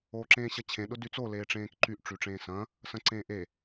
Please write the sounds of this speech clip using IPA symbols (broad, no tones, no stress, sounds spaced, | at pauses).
oː ǁ ẽː ɕ ɐ t͡ɕʰ ẽ ɗ ʊ d y t͡s o l eː ʈ͡ʂ ẽː k ǃ y ʔ ʈ͡ʂ y ʈ͡ʂ ẽː s ɐ̃ | s ɐ̃ ǀ ẽː ʔ e